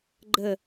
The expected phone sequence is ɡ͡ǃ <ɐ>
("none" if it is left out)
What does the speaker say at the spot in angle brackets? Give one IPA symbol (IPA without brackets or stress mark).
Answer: ə